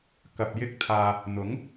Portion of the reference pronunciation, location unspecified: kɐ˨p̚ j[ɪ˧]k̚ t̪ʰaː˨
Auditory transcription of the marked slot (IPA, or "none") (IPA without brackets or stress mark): ɪ˧